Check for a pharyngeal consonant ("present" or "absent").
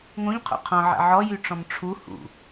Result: present